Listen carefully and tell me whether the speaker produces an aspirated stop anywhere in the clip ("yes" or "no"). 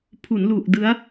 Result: yes